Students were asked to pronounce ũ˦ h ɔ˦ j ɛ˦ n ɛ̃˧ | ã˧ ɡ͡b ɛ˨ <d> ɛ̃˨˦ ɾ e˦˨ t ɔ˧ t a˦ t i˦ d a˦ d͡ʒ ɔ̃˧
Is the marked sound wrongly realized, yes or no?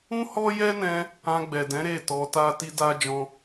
no